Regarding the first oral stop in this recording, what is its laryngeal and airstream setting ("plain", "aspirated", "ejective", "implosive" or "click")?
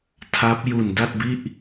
aspirated